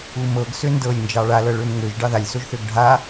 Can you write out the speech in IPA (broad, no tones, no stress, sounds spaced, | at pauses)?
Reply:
u m ɤ ɡ s ø n d ɤ lʲ n d͡ʒ ɑ ɭ a l ɤ ɭ ø m ŋ ø ʒ ɖ ɑ ð a lʲ s o ʒ θ ø ɡ ɖʱ a